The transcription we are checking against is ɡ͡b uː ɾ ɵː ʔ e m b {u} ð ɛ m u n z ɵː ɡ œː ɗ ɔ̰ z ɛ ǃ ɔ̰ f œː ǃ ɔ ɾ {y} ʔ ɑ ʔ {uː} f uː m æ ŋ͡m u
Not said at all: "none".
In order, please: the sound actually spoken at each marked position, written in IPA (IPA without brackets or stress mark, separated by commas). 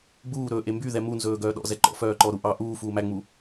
y, u, uː